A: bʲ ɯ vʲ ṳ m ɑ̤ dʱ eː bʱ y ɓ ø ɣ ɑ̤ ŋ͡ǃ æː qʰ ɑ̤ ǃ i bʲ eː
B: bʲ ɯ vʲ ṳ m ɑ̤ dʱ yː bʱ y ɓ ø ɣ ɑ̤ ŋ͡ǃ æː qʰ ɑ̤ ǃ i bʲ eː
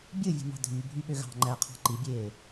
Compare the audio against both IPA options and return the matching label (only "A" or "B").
B